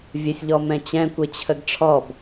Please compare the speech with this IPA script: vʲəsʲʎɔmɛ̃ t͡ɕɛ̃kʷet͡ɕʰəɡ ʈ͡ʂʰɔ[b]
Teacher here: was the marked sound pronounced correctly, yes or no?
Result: yes